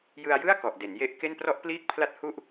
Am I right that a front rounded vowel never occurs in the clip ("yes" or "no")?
yes